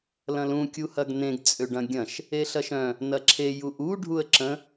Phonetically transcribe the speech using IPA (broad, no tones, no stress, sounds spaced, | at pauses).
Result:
l ɐ̃ l ũ kʲ u h ɐ ɡ n ẽ ɡ t͡sʼ ø ɖ ɐ̃ ɡʲ ɐ̃ ʃ | e ɬ ɐ ʃ œ̃ | n ɐ ǁʰ e j u ʔ u ɖʱ u ə̯ ǁ ə̃